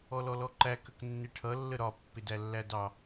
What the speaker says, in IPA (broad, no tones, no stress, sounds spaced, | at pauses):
ɔ l ɔ l ɔ ǃ æ k ə k nː ɪ ʈʰ ʌ lː ə ɾ ɒ pː ɪ d æ lː æ d ɑ